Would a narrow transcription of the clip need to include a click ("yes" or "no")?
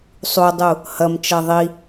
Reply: no